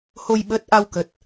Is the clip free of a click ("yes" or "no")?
yes